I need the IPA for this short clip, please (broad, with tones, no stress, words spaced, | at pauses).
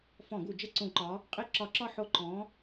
fɔ̃˧˩˧ɡu˧˩˧d͡ʒə˦˨ ǀũ˧˩˧ǃɒ˨˦ | qʼi˦˨ ǁɒ˧˩˧ǁɒ˦˨ ħo˦˨ ǃɔ̃˨˦